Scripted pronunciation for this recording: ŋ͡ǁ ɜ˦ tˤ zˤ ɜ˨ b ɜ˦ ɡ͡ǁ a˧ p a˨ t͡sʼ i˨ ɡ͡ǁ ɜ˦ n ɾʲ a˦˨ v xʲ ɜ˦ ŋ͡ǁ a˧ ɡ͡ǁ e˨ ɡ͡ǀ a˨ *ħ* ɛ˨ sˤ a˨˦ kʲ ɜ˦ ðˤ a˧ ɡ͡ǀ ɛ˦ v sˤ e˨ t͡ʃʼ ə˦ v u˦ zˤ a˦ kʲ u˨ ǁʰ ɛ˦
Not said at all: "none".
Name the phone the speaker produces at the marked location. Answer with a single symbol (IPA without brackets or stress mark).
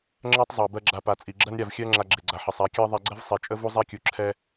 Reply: ħ